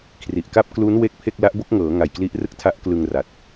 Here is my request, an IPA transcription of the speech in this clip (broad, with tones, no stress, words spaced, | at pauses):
kʰri˨˩ʔka˥˩p̚ klu˦˥n we˥˩k̚pʰe˥˩k̚ la˦˥ʔbo˥˩k̚ŋɤː˩˦ ŋa˨˩jkli˦˥ʔrɯ˥˩k̚ tʰa˦˥ʔklɯ˧ŋra˨˩t̚